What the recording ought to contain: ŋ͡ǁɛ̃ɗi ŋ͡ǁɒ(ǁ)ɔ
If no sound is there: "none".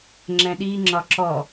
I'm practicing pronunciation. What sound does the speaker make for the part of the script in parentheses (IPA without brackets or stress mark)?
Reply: ǁ